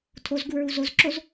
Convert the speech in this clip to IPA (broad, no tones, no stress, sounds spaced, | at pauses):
tʰ o z ɡ u ɹ u z o z ǁ o z